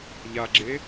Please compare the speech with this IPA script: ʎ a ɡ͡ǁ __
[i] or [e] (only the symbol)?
e